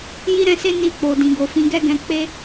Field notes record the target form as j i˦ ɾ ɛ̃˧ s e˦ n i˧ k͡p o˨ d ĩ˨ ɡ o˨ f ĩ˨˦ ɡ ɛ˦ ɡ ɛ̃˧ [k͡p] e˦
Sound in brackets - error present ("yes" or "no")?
no